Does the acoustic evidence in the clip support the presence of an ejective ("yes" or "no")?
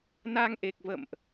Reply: no